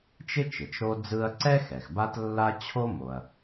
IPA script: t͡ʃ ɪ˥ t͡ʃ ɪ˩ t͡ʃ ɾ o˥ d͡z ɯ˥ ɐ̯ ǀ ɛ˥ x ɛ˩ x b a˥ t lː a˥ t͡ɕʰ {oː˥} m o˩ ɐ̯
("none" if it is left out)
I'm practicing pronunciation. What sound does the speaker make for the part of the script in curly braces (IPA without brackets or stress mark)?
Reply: o˥